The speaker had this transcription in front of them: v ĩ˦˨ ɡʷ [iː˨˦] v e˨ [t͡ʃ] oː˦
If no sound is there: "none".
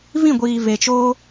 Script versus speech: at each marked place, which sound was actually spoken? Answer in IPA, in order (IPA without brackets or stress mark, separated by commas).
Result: iː˨, t͡ʃ